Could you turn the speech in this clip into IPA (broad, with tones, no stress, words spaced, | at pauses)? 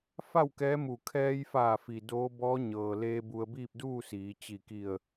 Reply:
fa˥˨wkɛː˧˥mu˧˩ kʰɛː˧jfaː˧˩fi˩ doː˧˥ bɔː˧˥ɲɤː˩leː˧ bu˧ə̯biː˥˨p̚duː˥˨siː˩˧ t͡ɕi˧˩ki˧˩ə̯